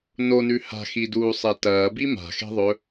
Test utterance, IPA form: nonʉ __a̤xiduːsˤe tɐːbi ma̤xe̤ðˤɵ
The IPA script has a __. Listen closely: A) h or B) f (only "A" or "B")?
A